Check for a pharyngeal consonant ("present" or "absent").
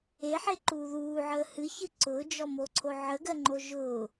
present